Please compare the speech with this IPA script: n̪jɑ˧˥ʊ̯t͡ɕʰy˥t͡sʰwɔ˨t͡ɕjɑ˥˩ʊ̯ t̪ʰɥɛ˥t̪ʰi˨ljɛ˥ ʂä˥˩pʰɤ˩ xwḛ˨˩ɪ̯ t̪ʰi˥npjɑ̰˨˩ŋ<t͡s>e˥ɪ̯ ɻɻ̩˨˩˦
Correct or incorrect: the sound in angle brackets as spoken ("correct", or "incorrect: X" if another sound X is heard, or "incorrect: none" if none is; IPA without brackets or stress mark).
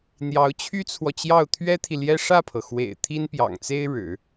correct